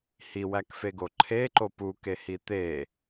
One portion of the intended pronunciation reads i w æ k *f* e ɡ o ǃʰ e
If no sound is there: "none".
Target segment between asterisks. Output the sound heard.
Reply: f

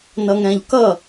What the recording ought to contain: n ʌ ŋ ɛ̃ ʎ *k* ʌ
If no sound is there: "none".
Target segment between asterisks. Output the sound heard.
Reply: k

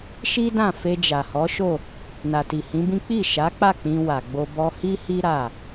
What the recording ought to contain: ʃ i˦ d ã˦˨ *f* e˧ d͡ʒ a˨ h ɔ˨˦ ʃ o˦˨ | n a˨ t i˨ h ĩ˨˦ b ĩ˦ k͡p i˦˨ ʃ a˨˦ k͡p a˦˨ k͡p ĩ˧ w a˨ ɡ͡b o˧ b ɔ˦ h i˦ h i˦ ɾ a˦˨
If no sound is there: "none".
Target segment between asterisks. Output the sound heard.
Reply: f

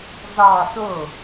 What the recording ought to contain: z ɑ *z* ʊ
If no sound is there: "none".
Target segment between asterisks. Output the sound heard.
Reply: s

